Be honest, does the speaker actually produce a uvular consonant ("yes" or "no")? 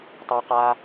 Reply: yes